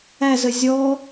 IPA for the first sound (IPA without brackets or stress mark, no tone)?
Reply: æ